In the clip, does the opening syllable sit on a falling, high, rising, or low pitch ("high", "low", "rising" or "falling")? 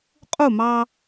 falling